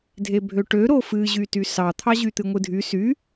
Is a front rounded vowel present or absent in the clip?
present